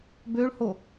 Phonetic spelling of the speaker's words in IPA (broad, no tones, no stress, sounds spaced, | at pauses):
b ø ɭ h o